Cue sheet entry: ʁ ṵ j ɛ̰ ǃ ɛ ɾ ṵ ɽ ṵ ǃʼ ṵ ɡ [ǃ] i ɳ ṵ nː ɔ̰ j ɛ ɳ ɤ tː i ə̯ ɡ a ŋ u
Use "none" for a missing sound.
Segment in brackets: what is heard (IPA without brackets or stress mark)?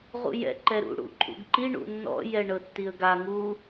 ǃ